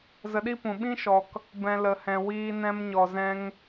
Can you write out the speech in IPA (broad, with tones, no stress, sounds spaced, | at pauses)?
z ə˧ ɗ i˦ p ũ˨ ɓ ĩ˦ ʃ ɔ˨ k | b ɛ̃˨ l ə˨ h ɛ̃˨ w iː˧ n ɛ̃˧ m ɲ ɔ˨ z ɛ̃˧ ŋ